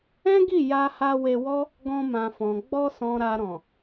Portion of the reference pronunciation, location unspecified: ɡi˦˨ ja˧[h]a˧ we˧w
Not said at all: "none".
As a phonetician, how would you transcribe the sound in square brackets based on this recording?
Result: h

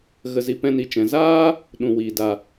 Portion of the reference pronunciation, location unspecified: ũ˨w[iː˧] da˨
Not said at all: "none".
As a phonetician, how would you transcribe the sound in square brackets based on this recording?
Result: iː˨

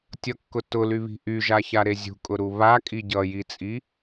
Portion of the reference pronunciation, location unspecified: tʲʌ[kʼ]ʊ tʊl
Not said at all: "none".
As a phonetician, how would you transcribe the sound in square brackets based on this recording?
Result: kː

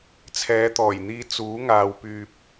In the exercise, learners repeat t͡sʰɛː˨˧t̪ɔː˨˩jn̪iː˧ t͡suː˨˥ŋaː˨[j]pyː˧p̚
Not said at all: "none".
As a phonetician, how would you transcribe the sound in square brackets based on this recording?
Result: w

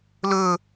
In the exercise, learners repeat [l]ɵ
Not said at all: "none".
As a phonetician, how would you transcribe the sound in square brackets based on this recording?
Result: l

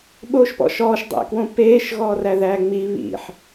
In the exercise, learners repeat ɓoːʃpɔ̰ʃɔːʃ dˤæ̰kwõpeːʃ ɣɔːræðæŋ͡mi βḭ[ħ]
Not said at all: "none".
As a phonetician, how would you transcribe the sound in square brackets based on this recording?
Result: ħ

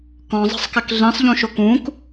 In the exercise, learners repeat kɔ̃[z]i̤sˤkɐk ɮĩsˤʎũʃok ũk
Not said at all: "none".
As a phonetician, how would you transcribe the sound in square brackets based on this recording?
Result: zˤ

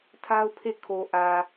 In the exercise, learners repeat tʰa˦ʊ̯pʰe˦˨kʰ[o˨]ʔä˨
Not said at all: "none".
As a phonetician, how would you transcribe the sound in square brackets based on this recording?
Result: o˨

